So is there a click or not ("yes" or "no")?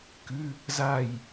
no